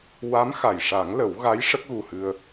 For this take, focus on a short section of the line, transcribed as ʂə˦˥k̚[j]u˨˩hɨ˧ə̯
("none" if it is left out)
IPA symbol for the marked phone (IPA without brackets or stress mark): ɣ